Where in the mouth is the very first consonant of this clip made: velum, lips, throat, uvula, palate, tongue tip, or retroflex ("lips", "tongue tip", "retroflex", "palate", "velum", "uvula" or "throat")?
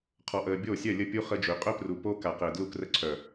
uvula